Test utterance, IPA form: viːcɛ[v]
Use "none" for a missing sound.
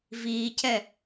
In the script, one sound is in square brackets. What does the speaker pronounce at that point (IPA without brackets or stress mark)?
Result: none